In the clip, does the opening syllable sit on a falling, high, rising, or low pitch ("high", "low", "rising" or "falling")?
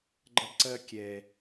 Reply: high